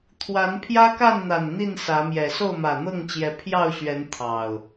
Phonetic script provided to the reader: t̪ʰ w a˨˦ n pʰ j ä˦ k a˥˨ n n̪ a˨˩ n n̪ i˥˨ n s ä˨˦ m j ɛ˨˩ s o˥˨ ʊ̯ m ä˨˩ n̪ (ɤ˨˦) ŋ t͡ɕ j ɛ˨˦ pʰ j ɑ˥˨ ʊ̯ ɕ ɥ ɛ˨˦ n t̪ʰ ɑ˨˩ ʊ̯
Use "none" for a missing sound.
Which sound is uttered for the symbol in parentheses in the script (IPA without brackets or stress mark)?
ɤ˥˨